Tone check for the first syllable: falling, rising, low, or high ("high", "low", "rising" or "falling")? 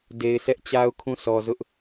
low